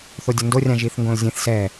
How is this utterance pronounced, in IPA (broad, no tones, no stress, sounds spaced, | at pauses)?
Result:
θ o dʲ ɔ n d o rʲ ã ʒ i θ ŋ ɡ õ l zʲ ẽ θ s ɛ